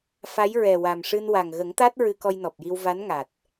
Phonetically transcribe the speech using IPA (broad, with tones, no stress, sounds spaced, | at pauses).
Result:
f a˧˥ j ɹ ɛ˨˩ w a˨˩ m ʂ ɨ˧ n w a˨˩ ŋ ɣ ə˨˩˦ ŋ t̪ a˦˥ t̚ ɹ ɨ˧ k ɔ˧ j n ɔ˨˩ p̚ j i˧ w v a˧˥ n ŋ a˨˩ t̚